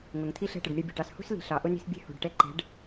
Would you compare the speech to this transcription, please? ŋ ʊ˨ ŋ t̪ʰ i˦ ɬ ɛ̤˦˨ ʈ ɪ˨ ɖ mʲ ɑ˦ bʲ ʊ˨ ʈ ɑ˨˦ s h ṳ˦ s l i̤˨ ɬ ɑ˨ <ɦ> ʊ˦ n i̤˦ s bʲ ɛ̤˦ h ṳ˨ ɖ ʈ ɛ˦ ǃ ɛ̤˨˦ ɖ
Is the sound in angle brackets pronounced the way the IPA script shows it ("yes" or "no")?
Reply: no